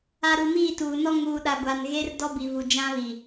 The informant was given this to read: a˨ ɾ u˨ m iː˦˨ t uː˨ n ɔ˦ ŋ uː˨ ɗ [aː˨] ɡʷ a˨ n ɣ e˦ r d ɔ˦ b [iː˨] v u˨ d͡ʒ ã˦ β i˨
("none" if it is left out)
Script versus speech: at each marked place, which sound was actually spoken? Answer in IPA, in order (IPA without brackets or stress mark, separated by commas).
a˨, i˨